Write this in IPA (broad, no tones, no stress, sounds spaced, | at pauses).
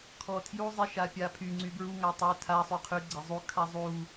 kʰ ɔ tʰ j u zˤ i ʃ a pʲ a pʰ y ŋ͡ǀ y b ɹ u ŋ a tˤ ø tʰ a sˤ y qʰ y ɡ͡ǀ e zˤ u kʰ a zˤ u